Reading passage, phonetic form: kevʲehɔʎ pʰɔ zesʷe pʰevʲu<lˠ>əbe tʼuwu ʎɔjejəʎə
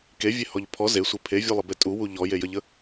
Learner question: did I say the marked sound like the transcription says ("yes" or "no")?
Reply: yes